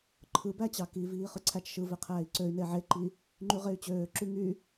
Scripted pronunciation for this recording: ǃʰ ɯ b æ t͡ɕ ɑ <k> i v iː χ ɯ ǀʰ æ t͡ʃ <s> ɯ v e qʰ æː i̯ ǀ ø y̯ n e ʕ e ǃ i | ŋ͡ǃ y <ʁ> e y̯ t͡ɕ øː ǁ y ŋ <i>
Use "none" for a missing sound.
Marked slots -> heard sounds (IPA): k, ʃ, ʁ, y

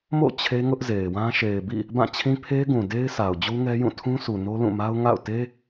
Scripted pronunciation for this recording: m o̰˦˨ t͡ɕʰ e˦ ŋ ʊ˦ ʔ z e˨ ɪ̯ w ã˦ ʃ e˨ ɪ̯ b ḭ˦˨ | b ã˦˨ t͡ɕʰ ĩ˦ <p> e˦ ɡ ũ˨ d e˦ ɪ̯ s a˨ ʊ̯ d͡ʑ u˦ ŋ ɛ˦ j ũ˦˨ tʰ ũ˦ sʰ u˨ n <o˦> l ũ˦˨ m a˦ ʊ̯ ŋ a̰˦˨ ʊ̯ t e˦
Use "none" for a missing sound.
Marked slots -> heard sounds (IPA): pʰ, o˦

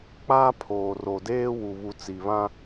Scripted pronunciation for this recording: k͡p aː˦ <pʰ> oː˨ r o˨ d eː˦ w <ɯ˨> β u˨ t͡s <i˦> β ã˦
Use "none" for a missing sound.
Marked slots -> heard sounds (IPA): pʰ, u˨, i˨

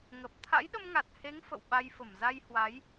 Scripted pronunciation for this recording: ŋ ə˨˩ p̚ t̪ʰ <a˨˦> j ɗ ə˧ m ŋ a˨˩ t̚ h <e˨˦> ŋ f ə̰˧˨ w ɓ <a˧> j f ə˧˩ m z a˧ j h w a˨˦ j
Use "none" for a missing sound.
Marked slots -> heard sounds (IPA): a̰˧˥, e˨˦, a˧

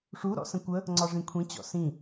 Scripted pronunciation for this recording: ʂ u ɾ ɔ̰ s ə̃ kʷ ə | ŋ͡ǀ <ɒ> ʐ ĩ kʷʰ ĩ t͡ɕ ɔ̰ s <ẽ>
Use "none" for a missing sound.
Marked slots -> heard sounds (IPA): ɒ, ĩ

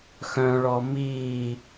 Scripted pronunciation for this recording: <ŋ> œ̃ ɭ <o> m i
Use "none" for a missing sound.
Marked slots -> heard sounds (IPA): x, ɔ

